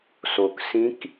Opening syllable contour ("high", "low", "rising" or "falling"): low